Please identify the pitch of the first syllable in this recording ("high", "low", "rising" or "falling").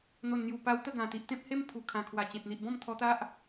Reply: low